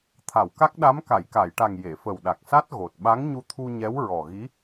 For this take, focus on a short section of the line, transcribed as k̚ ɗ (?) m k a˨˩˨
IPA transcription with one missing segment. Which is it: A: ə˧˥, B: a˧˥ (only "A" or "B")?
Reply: B